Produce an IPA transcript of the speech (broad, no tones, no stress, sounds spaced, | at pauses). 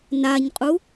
n a ɲ qʼ u